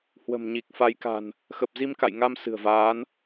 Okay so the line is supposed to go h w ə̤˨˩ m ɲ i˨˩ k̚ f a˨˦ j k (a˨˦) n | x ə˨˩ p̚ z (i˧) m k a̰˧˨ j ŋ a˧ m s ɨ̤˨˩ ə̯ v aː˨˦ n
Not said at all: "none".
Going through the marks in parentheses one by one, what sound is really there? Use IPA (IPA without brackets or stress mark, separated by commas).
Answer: a̤˨˩, i˧